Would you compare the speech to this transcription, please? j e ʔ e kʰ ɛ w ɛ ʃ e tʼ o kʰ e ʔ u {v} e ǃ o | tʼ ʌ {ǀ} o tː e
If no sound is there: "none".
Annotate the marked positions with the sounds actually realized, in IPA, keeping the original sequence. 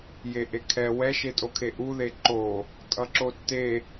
ð, ǁ

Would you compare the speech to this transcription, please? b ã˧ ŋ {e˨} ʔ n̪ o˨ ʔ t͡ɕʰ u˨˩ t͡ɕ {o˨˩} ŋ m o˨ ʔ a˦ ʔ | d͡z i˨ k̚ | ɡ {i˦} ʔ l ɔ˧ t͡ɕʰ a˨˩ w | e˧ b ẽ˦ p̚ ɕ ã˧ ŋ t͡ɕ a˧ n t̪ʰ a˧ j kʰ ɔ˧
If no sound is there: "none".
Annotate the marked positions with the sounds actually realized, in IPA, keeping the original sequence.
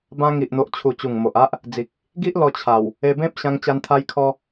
i˨, u˨˩, i˦

